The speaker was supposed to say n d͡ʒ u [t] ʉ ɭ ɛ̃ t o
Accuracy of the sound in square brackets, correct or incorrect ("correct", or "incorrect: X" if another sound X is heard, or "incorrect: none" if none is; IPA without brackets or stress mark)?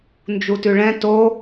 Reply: correct